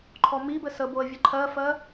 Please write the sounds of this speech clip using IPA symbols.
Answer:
ǃʰ ɔ m i b ɘ s ə b o ə̯ vʲ ə ǃʰ ɜ f ɜ

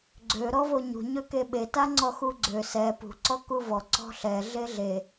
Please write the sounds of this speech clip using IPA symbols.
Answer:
ɡ͡ǀ ø ɾ ɔ v o ɲ ṳ ɲ ø k e ɓ e t a ŋ͡ǀ ɔ x u ɡ͡ǀ ø s ɛ p ṳ ǀ ɔ k u v ɔ ǀ ɔ̤ ɬ ɛ ɮ e ɮ e

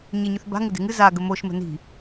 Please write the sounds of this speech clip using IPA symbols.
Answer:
ɲ e ɲ ʉ θ b a̤ ŋ ɪ d e̤ ŋ ɨ z a ɡ ə m o ʃ m ə̤ n i̤

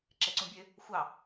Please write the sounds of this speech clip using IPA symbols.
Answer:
ǁ ɛ ǀ ũ bʲ ø | xʷ ɑ

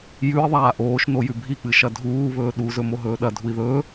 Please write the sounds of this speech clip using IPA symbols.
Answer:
j ʉ i̯ ðˤ aː ʔ oː ʃ n o j ʉ bʱ i k͡p ɨ ʃ ɐ dʱ uː β ɵː ɗ u z ɵ m o ɦ ɵː ɗ ɐ dʱ u i̯ ð ɵː

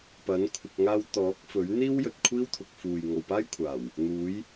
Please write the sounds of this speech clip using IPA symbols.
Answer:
p ɐ˨˥ n kʷʰ ɪ˧ k̚ ŋ aː˥ w t̪ ɔː˨˥ k̚ f ɵ˨˥ ɥ n̪ iː˥ w j ɵ˨ t̚ kʷʰ iː˥ w t̪ʰ ʊ˨ k̚ f uː˨ j ŋ o˨ w p aː˥ j kʷʰ aː˨˩ w | n̪ uː˨˥ j

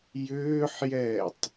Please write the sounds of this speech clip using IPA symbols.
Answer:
j ʏː ħ j ɛː tˤ

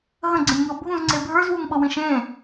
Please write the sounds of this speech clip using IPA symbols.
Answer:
ɦ ə̃ ɡ͡ǀ ə̃ nʲ ŋ ɤ bʱ ũ z ŋ͡ǀ e bʱ ə˞ z w u ŋ ɓ ɤ w ĩ ʃ ẽ

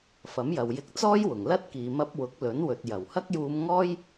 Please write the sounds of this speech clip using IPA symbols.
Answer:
f ɐ˨˥ m j ɐ˨ w j ɪ˧ k̚ t͡s ɔː˥ j w ʊ˨˩ ŋ l ɐ˥ t̚ k iː˨ m ɐ˧ p̚ w ʊ˨˥ k̚ l ɵ˨˥ n w ɵ˨ t̚ j ɐ˨˩ w h ɐ˥ k̚ j uː˧ m ŋ ɔː˥ j

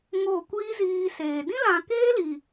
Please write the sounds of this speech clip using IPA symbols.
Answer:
ŋ o˦˨ kʷ iː˦ z iː˧ s eː˨ d ĩ˦ l ã˨ k eː˦ l iː˨

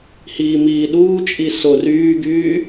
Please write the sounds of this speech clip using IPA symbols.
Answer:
h iː m iː ɗ uː t͡ʃʼ i s o r yː ɡ yː

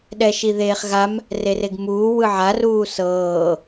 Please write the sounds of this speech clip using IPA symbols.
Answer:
ɗ ɛ ʃ i ð eː χ ɣ a m | r e r e ɡ m uː w ɯ ʕ a r uː s ɤː

